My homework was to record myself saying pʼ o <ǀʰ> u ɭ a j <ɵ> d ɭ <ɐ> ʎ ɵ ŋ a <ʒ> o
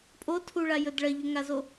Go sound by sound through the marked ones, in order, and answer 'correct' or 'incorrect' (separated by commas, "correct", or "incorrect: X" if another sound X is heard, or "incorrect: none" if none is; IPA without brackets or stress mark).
incorrect: tʰ, correct, correct, incorrect: z